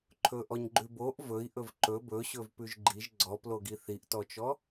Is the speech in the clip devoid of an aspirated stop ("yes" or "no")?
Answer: no